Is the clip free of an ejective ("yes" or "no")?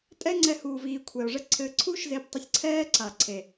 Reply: no